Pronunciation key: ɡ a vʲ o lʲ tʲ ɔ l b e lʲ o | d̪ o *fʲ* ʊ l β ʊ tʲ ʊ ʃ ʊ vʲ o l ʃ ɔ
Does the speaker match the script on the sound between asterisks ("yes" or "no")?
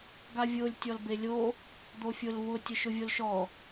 yes